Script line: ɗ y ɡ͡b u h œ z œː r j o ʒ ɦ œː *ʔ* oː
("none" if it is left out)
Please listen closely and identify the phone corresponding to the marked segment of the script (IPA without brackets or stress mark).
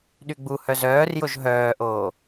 ʔ